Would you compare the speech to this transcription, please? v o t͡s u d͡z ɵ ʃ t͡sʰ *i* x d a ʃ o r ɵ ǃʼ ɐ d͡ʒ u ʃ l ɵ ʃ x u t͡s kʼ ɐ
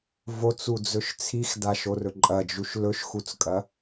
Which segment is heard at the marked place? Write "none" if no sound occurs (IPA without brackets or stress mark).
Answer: i